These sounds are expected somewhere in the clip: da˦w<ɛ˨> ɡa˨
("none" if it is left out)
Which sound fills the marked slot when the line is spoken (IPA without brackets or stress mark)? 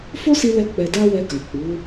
ɛ˧